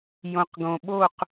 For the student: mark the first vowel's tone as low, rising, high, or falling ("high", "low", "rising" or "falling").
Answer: low